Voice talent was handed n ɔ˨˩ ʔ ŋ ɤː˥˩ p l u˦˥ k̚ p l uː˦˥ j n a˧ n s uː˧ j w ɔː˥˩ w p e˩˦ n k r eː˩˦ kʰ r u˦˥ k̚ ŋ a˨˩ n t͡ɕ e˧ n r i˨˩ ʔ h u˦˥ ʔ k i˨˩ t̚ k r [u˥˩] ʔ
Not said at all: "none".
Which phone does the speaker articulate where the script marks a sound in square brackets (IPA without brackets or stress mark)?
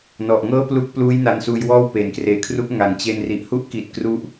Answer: u˥˩